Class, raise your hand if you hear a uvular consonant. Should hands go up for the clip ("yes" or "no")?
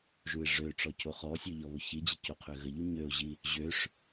yes